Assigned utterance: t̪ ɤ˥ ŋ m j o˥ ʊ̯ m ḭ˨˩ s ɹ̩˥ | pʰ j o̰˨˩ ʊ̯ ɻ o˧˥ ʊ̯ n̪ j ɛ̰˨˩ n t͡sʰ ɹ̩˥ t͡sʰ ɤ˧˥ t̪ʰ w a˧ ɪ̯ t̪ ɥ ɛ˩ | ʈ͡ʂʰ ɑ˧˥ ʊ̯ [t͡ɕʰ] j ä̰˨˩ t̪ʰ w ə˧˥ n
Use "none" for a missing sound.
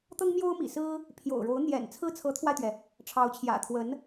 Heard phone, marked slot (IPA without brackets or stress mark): t͡ɕʰ